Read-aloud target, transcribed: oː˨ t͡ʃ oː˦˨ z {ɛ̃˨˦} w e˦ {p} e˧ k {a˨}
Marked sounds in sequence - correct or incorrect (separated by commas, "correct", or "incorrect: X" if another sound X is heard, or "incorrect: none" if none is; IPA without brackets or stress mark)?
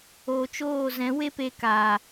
correct, correct, incorrect: aː˨